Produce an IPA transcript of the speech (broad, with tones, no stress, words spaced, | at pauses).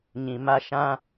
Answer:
ɲĩ˨ma˧ʃã˧